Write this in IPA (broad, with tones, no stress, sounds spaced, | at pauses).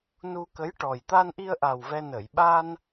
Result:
n u˧ k ə˧˥ j ʈ ɔ˨˩ j t̪ a˧ n ʔ i˧ ə̯ ʔ a˨˩ w v ɛ˧ n ə˨˩˨ j ɓ a˧ n